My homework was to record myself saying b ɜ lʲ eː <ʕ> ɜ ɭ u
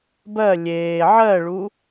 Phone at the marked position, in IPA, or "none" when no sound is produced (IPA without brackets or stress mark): ʕ